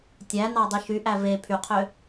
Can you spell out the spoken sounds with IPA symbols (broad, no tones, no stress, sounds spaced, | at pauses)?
tʲ æ n ɑ dˤ i ʃ y ʔ æ v e pʰ y qʰ ø